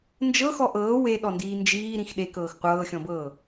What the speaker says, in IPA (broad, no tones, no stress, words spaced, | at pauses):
nd͡ʒɤxɔ ʔɤː weɗɔndiː nd͡ʒiːɾĩx ɗekɤːx qʷɤːxʲɔ̃bɤː